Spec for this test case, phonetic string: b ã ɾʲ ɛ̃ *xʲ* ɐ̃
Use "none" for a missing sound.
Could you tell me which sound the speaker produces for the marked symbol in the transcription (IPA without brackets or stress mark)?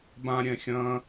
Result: xʲ